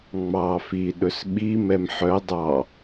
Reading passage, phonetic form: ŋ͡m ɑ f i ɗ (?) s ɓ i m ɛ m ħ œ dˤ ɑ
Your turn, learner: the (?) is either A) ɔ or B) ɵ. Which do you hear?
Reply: B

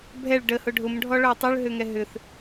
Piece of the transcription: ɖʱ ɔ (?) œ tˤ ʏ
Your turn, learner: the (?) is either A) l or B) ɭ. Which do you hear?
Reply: B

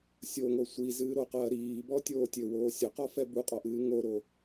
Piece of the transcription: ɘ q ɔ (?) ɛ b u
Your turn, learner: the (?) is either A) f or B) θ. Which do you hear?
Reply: A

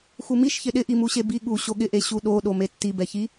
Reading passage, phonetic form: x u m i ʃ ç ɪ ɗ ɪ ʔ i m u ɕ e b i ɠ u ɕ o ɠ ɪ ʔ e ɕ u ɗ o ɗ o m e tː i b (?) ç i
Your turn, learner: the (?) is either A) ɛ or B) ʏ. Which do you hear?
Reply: A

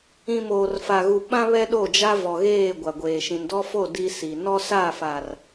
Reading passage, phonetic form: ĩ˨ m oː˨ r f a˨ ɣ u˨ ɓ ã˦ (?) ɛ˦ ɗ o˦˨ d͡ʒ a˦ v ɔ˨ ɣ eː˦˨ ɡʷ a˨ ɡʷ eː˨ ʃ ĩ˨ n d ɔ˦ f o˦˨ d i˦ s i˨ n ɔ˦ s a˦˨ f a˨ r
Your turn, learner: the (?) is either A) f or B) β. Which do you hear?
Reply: B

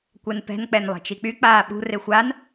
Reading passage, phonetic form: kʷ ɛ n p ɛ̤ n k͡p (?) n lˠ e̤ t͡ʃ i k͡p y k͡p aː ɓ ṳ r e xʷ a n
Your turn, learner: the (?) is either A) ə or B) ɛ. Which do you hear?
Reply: B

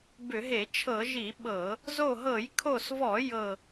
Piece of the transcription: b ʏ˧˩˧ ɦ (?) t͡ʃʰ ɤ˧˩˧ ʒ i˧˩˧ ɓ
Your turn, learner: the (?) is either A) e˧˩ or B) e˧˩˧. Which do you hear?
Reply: B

